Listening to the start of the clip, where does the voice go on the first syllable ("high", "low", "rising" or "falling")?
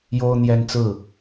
high